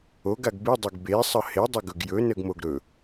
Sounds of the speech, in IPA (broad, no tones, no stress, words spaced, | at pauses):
oɡaɡ bɨdˤeɡ besˤə hedˤɵɡɵɡ jɵnəɡmoɡ ɾɵ